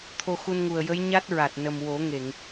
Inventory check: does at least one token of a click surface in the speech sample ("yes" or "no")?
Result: no